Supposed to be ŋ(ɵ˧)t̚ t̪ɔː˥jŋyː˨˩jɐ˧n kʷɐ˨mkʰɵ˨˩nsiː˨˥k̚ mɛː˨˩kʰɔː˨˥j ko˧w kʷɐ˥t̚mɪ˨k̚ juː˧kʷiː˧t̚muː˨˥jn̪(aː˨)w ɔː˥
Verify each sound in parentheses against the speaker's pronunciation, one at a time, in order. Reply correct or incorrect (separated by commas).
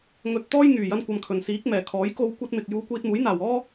correct, incorrect